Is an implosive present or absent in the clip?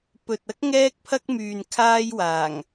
absent